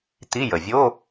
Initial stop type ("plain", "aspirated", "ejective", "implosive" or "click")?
plain